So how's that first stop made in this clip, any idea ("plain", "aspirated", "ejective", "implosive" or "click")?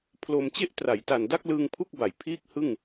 aspirated